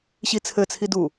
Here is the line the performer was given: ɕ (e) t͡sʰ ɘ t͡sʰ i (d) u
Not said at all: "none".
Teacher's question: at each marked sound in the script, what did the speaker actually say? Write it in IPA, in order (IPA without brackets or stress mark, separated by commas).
i, d